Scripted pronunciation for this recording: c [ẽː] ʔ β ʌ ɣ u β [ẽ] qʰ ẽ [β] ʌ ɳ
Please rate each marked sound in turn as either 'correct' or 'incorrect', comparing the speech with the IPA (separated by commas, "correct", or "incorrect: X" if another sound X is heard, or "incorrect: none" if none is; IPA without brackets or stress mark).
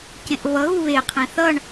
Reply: incorrect: ẽ, incorrect: e, incorrect: θ